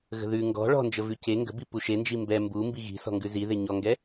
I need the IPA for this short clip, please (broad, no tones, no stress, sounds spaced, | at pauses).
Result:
ɣ ə̤ ð ʉ ŋ ɡ ɔ̤ ɭ ɔ̤ n d͡ʒ ə v ʉ c e ŋ ɡ ə̤ b i p u ʃ e n d͡ʒ i m b ɛ m b u m b i ɣ i̤ s ɔ̤ ŋ ɡ ʉ z i ð e ɲ ɔ ŋ ɡ ɛ